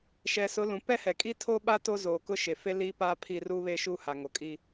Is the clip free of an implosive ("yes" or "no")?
no